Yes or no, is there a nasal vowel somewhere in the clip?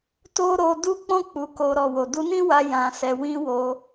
yes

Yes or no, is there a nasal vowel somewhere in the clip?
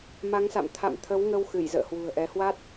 no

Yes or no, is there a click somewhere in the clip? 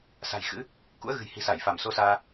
no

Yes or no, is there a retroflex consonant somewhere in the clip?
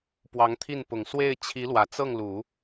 no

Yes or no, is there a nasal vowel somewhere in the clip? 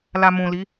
yes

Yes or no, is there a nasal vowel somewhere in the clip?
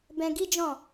yes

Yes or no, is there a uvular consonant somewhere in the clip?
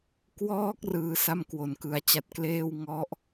no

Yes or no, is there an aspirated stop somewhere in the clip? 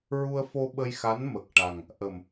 no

